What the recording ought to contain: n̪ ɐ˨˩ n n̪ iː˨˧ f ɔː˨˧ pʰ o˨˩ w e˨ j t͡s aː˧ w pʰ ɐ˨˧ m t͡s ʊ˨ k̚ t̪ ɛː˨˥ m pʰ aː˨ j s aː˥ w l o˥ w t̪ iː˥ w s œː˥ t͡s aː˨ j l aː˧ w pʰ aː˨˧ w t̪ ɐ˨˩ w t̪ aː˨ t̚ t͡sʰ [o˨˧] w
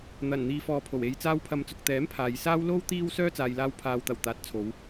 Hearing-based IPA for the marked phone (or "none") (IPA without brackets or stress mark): o˨˧